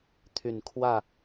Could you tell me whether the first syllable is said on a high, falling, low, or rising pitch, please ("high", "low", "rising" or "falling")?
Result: falling